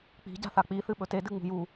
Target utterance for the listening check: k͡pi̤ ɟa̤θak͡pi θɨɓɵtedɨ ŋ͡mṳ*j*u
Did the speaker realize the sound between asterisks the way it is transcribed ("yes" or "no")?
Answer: yes